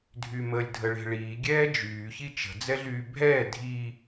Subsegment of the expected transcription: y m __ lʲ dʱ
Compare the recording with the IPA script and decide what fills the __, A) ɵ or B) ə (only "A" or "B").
B